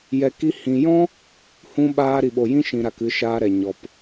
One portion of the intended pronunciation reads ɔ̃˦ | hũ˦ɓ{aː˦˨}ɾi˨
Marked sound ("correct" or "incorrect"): incorrect